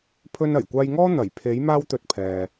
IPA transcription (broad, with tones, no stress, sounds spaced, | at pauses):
pʰ ɵ˧ n ɐ˨˩ j kʷ aː˧ j ŋ ɔː˥ n̪ ɐ˨˩ j pʰ e˨˥ j m aː˥ w t̪ ɵ˧ t̚ pʰ ɛː˨